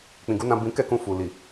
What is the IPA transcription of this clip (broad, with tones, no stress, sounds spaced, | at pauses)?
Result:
k͡p ĩ˨ ɡ u˨˦ n ã˧ b ĩ˦ k ɛ˦˨ k ũ˧ f u˨ l i˨